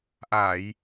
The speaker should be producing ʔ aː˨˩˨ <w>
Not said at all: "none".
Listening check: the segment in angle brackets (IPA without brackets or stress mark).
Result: j